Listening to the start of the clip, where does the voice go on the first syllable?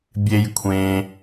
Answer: low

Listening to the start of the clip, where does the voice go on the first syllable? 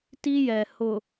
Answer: high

